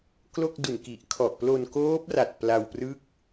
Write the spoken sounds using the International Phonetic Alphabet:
klo˥˩k̚du˨˩nki˨˩ʔkʰɔ˨˩ʔ plo˧nkoː˦˥p̚ra˨˩t̚ pla˧wprɯ˥˩k̚

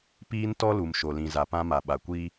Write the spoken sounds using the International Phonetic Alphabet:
piː˦ntɔ˦lu˨m ʃo˨lĩ˨za˨pã˦ ma˨ ɓa˨kʷiː˦

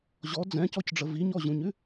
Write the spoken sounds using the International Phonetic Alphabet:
ʑɔ d͡zɛ̃cɔcɖ͡ʐə viɲɔʑũɲʉ

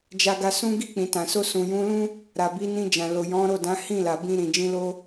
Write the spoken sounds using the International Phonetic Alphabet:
d͡ʒa˧ɡa˧sũ˦ ɡi˦˨k͡pĩ˨tã˨so˧ sũ˨jũ˨˦lũ˦ | ɾa˨bi˨˦nĩ˧d͡ʒã˨ lo˨jɔ̃˨˦ɾo˦˨ dã˨˦hĩ˦˨la˨ bĩ˧ ɾĩ˨d͡ʒĩ˧lo˦

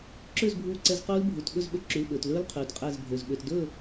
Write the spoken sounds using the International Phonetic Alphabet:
ǁø˥˨zbʱuː˧˩ǀɛ˧z quː˦˥lbʱu˩˧˩tɓɵ˥˨z ɓø˧ǁy˩˧˩lɓɵː˩tlɵː˦˥l qʰyː˩˧˩tqʼɛ˥˨zbʱø˩˧˩zɓø˧t dɵː˥˨

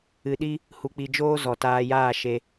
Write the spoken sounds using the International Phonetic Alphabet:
ɨ˧ɗi˦ | hu˧k͡pi˧ d͡ʒoː˦zɔ˨taː˧jaː˦˨ ʃe˧

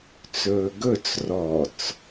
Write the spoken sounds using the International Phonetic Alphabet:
t͡sɵːɡɵt͡s rɔt͡s

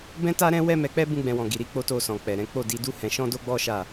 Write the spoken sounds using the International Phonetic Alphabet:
bɛ̃˦ta˦ɾɛ̃˦ wɛ˦mɛ˧k͡pɛ˦ bũ˦ɡ͡bɛ̃˧wɔ̃˨ ɡi˨ɾi˧ k͡po˦to˦˨sɔ̃˨ k͡pɛ˨ɾɛ̃˨˦ k͡po˦˨di˨˦ du˦ hɛ̃˧ ʃɔ̃˦do˦ɡ͡bɔ˦ʃa˦˨

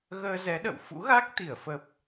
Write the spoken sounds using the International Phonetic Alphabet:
ɣəː˧ zɛ˨˦ɗə̰˧˨w fṵ˧˥ɣa˦˥k̚ t̪i˧˩ə̯fə˨˩p̚

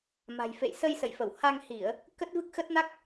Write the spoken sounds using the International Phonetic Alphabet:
ma̤˨˩jfḛ˧˨jsə˧j sə̰˧˨jfə˧˩w ha˧ŋhi˧˩˨ə̯ | kə˦˥t̚vɨ˦˥k̚xə˦˥t̚na˦˥k̚

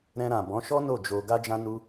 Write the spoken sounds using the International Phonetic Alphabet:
ɾɛ̃˧ɾã˨bɔ̃˨˦ʃɔ˦ no˦˨d͡ʒo˧ ɡa˧d͡ʒã˧nu˧

